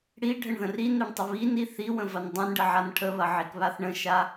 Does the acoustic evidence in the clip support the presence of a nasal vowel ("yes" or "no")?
yes